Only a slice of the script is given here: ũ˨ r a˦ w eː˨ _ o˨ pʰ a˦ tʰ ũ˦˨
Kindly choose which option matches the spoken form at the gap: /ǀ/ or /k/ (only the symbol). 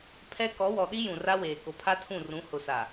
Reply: k